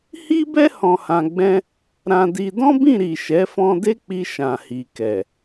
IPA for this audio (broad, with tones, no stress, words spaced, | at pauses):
hi˦bɛ˦ hɔ̃˧hã˧ɡ͡bɛ̃˦ | ɾã˧di˧ dɔ̃˦bĩ˦˨ɾi˨ ʃɛ˨˦fɔ̃˧de˦k͡pi˧ ʃã˨hi˨ kɛ˨